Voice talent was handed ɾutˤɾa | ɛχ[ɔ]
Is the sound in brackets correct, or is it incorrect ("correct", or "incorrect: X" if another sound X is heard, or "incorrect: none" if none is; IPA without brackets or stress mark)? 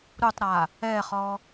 correct